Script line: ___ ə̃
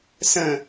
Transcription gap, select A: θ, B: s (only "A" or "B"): B